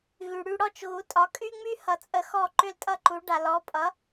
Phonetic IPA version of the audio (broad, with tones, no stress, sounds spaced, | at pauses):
ɣ y˩ ɽ y˧ ɽ ɔ˥˩ t͡ʃ ɣ u˩˥ tʼ ɒ˩˥ kʼ y˥ ŋ͡m y˥ h ʌ˩˥ t͡sʼ ə˧ x ɔ˥˩ ǃ ʏ˥˩ l tʼ ʌ˥ ǃ u˩˥ ɖ a˩ l ɔ˩˥ pʼ ʌ˩˥